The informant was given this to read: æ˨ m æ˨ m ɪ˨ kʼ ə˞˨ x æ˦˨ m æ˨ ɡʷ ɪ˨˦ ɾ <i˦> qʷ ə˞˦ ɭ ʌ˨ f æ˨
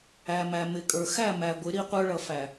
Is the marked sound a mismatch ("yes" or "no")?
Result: no